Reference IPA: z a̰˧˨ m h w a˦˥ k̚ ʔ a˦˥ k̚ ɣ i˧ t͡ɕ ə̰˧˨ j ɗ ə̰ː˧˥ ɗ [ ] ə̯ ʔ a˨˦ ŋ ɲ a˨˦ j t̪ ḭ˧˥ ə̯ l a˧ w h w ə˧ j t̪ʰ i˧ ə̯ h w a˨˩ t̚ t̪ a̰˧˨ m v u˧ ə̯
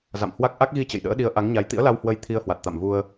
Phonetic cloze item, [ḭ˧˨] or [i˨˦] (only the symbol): i˨˦